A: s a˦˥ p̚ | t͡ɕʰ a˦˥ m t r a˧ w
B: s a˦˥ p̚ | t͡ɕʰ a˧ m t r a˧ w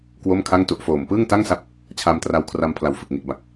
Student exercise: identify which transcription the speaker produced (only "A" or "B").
B